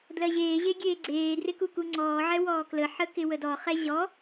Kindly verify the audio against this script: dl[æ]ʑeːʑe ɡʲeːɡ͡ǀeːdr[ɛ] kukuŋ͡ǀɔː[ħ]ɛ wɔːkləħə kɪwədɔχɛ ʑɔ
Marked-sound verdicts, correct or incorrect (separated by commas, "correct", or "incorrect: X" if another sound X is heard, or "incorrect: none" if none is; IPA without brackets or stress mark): incorrect: ɜ, incorrect: ɪ, incorrect: ʕ